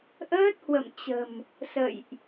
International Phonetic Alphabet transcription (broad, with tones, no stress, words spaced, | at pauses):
ʔəː˦˥t̚hwə̰˧˨mt͡ɕə̤˨˩m | sə̰˧˨jʔ